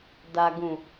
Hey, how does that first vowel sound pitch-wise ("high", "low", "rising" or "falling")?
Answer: low